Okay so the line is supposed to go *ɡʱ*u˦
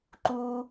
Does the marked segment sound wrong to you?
yes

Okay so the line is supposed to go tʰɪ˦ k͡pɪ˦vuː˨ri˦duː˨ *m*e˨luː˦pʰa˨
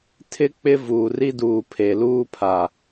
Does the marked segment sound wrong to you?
yes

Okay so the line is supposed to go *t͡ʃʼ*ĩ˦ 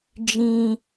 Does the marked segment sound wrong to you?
yes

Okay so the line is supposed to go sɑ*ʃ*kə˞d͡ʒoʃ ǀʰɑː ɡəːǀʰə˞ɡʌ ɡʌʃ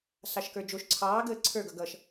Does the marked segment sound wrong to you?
no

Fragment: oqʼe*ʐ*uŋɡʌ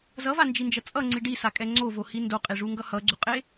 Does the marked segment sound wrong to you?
no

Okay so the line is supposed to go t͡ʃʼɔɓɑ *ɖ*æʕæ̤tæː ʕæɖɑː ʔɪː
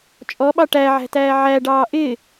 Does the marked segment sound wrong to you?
yes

